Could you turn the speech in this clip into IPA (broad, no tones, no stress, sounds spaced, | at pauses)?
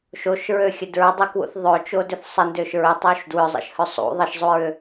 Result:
ʃ o ʃ ɹ ø xʲ ə d ɹ ʏ dˤ u k w ṵ θ ðˤ ø t͡ʃ o d ʏ θ sˤ ə n d ø ʃ ɹ ɪ tˤ o ʃ d w ʏ zˤ ə̰ ʃ h ø sˤ ṵ ðˤ ə ʃ zˤ u ɹ ʏ